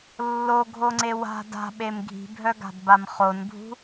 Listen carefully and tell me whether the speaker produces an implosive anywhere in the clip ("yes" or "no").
yes